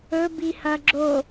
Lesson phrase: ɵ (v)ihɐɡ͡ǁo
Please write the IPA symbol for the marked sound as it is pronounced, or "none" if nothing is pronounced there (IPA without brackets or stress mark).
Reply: b